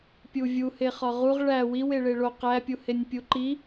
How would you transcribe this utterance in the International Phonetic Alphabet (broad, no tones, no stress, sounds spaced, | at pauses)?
pʲ u vʲ u h e χ ɒ ʁ u ʁ ɭ æ w i w e ɭ e ɭ o q æ pʲ u h e nʲ pʲ u ǃ i